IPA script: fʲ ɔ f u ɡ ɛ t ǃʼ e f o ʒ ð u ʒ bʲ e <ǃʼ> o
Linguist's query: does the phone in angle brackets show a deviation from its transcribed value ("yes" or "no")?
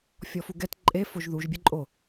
no